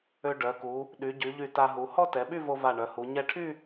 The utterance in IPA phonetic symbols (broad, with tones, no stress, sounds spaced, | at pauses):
ø˧ ɖ œ˩˧ k u˩˧ | ɗ y˩˧ ɟ y˩˧ ʎ y˧˩ t a˧ ɦ u˩˧ h ɔ˥ t ɛ˩˧ ɓ y˥˧ v o˧ v a˧˩ ɳ œ˩˧ h u˩˧ ɲ ɛ˧˩ ʈʰ y˥˧